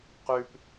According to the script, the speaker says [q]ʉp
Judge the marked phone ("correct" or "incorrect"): correct